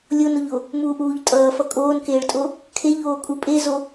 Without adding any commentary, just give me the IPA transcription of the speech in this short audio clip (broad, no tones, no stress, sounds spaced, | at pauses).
lʲ o n o ʎ o | m uː ʔ uː ʎ tʼ ʌː f ʌ kʼ oː n k eː ɭ tʼ o | kʰ e ʎ oː kʼ u pʼ e z o